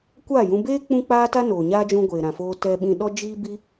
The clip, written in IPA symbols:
kʷ aː˦˨ j ũ˧ b eː˦ k͡p ũ˦ k͡p aː˦ t a˦ n oː˨ ɲ aː˦ d͡ʒ ũ˧ ɡʷ eː˨ ɾ ã˨ f oː˧ t ɛ˧ ɓ ĩ˧ ɗ ɔ˦ d͡ʒ iː˦ b i˦

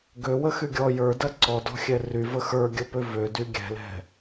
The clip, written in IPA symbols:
ɡ ø w ə x y ɡʲ ɔ j ə˞ d ɐ ǀ ɔ d ɔ̤ xʲ ɛ r y v ə x ə˞ ɡʲ ə p ø v ø d y ɡʲ ɛ̤ l ɛ̤

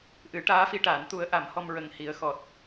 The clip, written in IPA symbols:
ʔ ɨ˨˩˦ ʈ aː˧˥ f i˧ ʈ a˨˩˦ n t̪ u˧˥ ə̯ ʔ a˨˩˦ m h ɔ˧ m ɹ ə˨˩ ŋ h i˨˩˦ ə̯ x ɔ˨˩ t̚

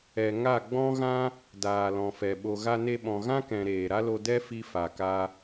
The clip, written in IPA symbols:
ɛ˨ ŋ a˦˨ ɡ͡b ɔ̃˦ ɣ ã˦ | d aː˨ l ɔ̃˨ f ɛ˨ ɓ o˨ ɣ a˧ n e˧ ɓ ɔ̃˨ ɣ ã˦ k ɛ̃˨ ɾ eː˨ ɾ a˦ l o˧ d ɛ˦ f i˧ f a˨ k a˧

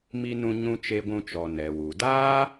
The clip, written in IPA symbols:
m i˧ n ũ˧ ɲ ũ˧ t͡ʃ e˧ ɡʷ ũ˧ t͡ʃ ɔ˨ n ɛ˨ w u˨ d aː˦

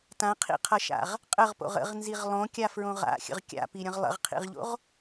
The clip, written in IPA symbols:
t ã qʰ ḭ qʰ ʌ ʃ a̰ ʁ | qʼ ə ʁ p o̰ ʁ ə̰ ʁ n z i ʁ lˠ õ kʲ a f ɹ õ ʁ a̰ xʲ ə̰ ʁ kʲ a̰ p i ɾʲ ə̃ ʁ lˠ ə̰ ʁ qʰ ḭ ʁ ʎ o̰ ʁ

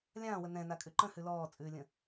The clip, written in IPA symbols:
lʲ ãː w ə n ɛ̃ n a kʼ ʉ ǃ ə̃ h ʉ l ɔː t͡sʼ ʉː lʲ ə̃

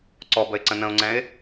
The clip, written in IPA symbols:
ǀ ɔ b ə ɪ̯ ǀ ə̃ n ə̃ ʊ̯ ŋ͡ǀ ɛ̃ ɪ̯

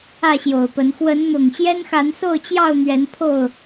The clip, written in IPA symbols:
ä˥˨ ɕ j o˨˩ ʊ̯ p ə˨˦ n x w ə˨˦ n n̪ ʊ˨˩ ŋ ɕ j ɛ˦ n x a˨˦ n s o˥˨ ʊ̯ t͡ɕ j ɑ˥˨ ʊ̯ n̪ ɥ ɛ˨˦ n pʰ o˥˨ ʊ̯

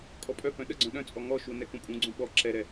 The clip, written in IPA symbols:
kʼ ɔ pʼ œ p œ̃ ɗ ə ɡ͡ǀ œ̃ ɗ œ̃ t͡sʼ ɔ ŋ ɔ ʃ u n ɛ k ũ pʼ ũ ɡ͡ǀ ũ ɓ ɔ ǁ ɛ ɾ ɛ

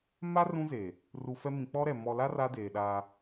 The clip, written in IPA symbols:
m a˦ r ũ˦ z eː˨ | r u˨ f ɛ˦ m ĩ˨ k͡p ɔ˦ ɾ ɛ˨ m ɔ˨ l a˦ r a˦ d eː˨ ɗ aː˦

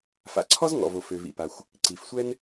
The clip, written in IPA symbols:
f a̰˩ ǀʰ ɔ˥ z ŋ ɔ̰˩ v o˩ f ø˩ v ḭ˩ p a˩ xʷ | ǀ i˩ f sʷ ɛ˥ n

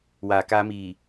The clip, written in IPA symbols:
w aː˩˦ k aː˦˥ m iː˨˩

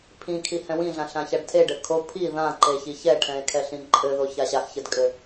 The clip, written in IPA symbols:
pʰ ĩ kʰ i h ɛ̃ w ĩ ɮ ã ɬ ã ç a ɖ tʰ e ɖ ɘ kʰ o pʰ i ð ã ǃ e ç i ç ɛ ʈʰ ɛ̃ e̯ kʰ ɛ ɬ ĩ ǃʼ ɘ ð o ç a ɕ a x ç ɘ d kʼ ɘ

